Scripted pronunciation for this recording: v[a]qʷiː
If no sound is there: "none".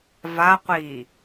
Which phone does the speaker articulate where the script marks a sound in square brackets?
a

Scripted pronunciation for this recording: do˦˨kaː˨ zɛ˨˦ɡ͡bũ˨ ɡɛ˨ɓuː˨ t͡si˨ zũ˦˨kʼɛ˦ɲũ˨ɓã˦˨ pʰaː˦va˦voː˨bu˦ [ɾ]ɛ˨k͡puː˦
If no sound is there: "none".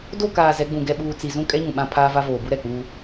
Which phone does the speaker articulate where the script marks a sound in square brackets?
ɾ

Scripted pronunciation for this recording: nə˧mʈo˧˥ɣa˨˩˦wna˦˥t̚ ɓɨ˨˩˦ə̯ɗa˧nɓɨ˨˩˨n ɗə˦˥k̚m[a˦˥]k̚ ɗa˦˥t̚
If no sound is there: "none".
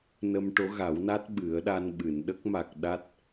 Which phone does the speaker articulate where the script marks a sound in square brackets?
a˨˩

